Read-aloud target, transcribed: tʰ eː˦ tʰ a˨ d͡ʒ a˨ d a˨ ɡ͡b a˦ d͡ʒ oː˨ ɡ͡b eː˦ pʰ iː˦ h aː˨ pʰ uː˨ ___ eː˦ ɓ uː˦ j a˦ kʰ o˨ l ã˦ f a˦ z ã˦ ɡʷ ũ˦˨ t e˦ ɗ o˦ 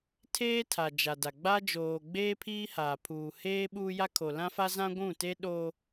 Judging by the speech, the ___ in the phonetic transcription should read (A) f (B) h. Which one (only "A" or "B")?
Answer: B